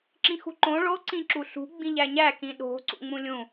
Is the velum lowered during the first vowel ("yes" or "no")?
yes